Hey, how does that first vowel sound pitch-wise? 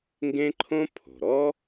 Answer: high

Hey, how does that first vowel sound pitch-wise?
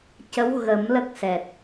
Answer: rising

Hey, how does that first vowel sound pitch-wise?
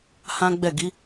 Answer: high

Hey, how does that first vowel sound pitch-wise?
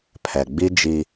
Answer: low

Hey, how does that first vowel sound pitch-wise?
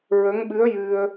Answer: rising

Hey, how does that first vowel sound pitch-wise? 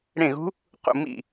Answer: falling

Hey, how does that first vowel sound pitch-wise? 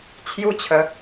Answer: falling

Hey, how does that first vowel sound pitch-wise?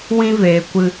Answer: high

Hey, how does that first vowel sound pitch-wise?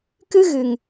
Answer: high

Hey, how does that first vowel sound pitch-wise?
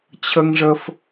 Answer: high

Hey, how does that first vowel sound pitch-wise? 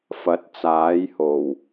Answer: rising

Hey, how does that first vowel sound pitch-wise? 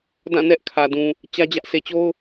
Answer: falling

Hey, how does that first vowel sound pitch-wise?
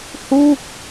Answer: falling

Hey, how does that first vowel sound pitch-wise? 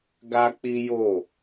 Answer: high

